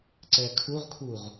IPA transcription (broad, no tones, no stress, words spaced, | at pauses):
ǀɛkʰuʁkʰuʁ